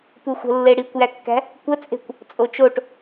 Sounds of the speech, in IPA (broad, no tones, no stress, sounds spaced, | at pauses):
tʷ e xʷ ə̤ lː e ɽ i kʷ j æ kː æ̤ | kʷ ə t͡sʼ e̤ kʷ | t͡sʼ o t͡ʃ o ʈ